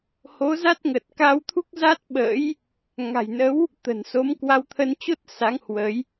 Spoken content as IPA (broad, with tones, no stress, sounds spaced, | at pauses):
h o˨˦ z a˦˥ t̚ ŋ ə˨˩ t̚ k a˧ w t̪ʰ u˦˥ k̚ z a˦˥ t̚ ɓ ə̰ː˧˥ j | ŋ a̤˨˩ j n ə˨˦ w | t̪ ə̤˨˩ n s o˨˦ m k w a˧ w t̪ʰ ə˧ n t͡ɕ o˦˥ t̚ s a˨˦ ŋ h w ə˨˦ j